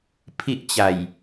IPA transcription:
pʰ i˦ ʔ t͡ɕ a˨˩ j

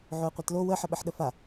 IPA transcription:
ʕ o ə̯ qʷ a t l o w ə ħ ə ɓ ə ħ ɗ ə f a

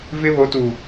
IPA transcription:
v ɪ˦ β o˨˦ t u˨

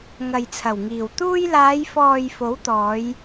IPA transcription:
ŋ ɐ˨ j t͡sʰ ɐ˨˩ w ŋ iː˨˩ w t̪ uː˧ j l aː˨˧ j f ɔː˨ j f o˨˥ w t̪ ɔː˨˧ j

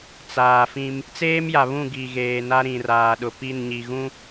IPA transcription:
t͡s aː˨ f ĩ˦ m | t͡s eː˦ m j a˨ β ũ˦˨ ɡ i˨ ɣ eː˨ n a˦ ɾ ĩ˨ r aː˨ ɗ ʊ˨ p i˦˨ n ɲ i˨ ɣ ũ˦

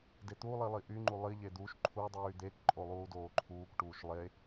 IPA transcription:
d e t̪ u lˠ i lˠ i ʔ y ŋ͡ǃ u lˠ i ʎ e d̪ u ʃ ǃʰ u dˤ yː d̪ e k ǃʼ o lˠ uː d oː ǃʰ uː k ʈ uː ʃ lˠ e

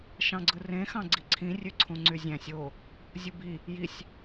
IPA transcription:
ʃ ɑ̃ ɡ͡ǀ ɯ r ẽ x ɑ̃ ɡ͡ǀ i ǀʰ ĩ rʲ ø ǀʰ ũ ŋ͡ǀ y zʲ æ̃ sʲ o | zʲ u b i | j i sʲ

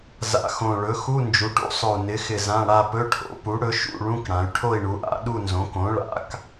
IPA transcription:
z a̰˨˩ x õ˨˩ ɭ ɵ˩˥ x u˧˥˧ n d͡ʒ u˩˥ ʈ ṵ˩˧ sˤ ɵ˨˩ u̯ n ɪ˩˥ x ɪ˨˩ z ã˧˥˧ ɽ a˥˧ p ɵ˧˥˧ ʈʰ o̰˩˥ p u˩˥ ɽ ɵ˩˥ ʃ ṵ˥˧ ɭ ũ˧˥˧ k ɽ ã˩˧ y̯ ʈʰ o˥˧ i̯ ɳ u˩˧ ʔ a̰˩˧ ɗ u˥˧ n z õ˩˥ k õ˩˥ ɭ a̰˩˧ k

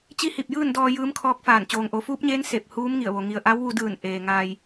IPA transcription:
t͡ɕ i˧˥ h i˧˩ p̚ j ɯː˥˨ n d ɔː˧ j ɯː˧˥ m kʰ ɔː˧˥ k̚ f aː˧˩ n t͡ɕ oː˩ ŋ ʔ o˩˧ f uː˧˥ p̚ ɲ eː˧˥ n s e˧˩ p̚ h uː˧˥ m ŋ i˧˩ ə̯ ʋ o˩ ŋ i˩ ə̯ ʔ a˧˥ w ʋ u˧ d ɯː˧˩ n ʔ eː˩ ŋ aː˧ j

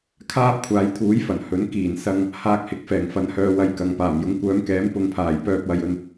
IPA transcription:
kʰ aː˥ p̚ kʷʰ aː˨˧ j t̪ʰ uː˨˥ j f ɐ˨˩ n h ɵ˨˥ n k iː˨˩ n s ɐ˧ ŋ | h aː˧ k̚ h ɪ˨˥ k̚ f ɛː˨˩ ŋ f ɐ˨˥ n h œː˧ w ɐ˧ j k ɐ˨ ŋ p aː˨˩ m j ʊ˨ ŋ kʷ œː˨˧ m k ɛː˨˥ m p ʊ˧ ŋ pʰ aː˨˩ j p œː˧ p̚ w ɐ˨ j ɵ˧ n

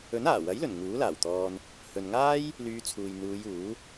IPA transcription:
ɵ˨˥ n aː˨˩ w ɐ˨˥ j l ɵ˨˩ n ŋ uː˨˥ l aː˨˩ w t̪ ɔː˧ n | h ɵ˨ n ŋ aː˥ j | l yː˧ t͡sʰ uː˨ j n̪ uː˨˧ j uː˨˥

